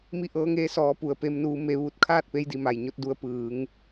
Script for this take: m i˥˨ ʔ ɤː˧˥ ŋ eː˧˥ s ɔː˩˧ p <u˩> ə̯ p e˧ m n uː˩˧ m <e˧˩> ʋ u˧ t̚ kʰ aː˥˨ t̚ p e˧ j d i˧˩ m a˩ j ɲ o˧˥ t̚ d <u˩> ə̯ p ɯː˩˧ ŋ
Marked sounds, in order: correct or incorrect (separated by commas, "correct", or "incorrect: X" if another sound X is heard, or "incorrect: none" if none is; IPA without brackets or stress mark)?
correct, incorrect: e˩˧, incorrect: u˩˧